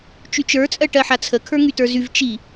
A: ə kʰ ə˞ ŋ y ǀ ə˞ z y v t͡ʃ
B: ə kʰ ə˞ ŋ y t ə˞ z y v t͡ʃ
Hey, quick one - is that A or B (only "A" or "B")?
B